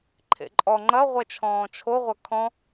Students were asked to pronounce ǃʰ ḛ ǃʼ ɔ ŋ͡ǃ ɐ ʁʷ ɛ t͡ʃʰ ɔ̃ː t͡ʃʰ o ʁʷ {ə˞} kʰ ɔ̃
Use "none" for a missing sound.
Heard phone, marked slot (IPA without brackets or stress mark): ɐ